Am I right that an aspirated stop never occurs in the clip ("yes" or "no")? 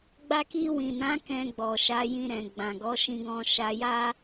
yes